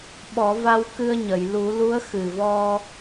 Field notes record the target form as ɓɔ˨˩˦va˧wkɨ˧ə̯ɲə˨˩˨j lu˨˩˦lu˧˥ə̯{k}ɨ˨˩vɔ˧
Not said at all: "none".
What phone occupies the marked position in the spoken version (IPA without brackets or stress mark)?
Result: x